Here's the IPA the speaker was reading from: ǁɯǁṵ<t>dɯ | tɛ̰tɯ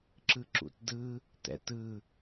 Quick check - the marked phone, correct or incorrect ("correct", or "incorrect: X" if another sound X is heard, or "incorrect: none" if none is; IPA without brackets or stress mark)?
correct